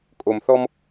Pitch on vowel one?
low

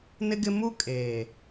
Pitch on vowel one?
high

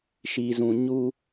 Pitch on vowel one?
low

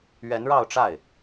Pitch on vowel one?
rising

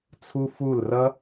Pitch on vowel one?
high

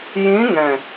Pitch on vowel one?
rising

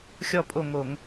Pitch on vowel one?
falling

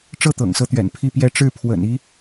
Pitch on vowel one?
falling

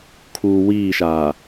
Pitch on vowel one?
low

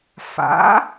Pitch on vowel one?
rising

